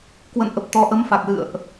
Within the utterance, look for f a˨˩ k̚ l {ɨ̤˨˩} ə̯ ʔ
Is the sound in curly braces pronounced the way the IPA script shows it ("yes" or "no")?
no